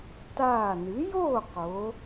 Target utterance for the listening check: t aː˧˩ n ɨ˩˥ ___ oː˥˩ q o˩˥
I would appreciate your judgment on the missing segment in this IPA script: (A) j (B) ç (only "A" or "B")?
A